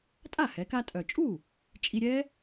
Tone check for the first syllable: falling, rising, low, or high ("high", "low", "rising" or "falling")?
falling